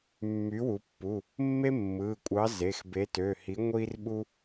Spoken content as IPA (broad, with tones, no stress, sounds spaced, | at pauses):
mː y˨˥ w u˩˧ pː u˩˧˩ | mː e˦ mː ɯ˩˧˩ kʷʼ ɑ˨˥ z e˩˧˩ x b e˨˥ t ø˩˧˩ h i˨˥ ŋʷ i˦ r ɓ u˦